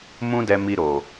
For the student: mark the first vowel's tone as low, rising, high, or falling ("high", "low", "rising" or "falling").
high